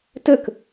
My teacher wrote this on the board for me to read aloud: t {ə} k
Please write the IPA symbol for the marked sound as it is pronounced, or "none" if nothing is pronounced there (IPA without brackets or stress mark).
ə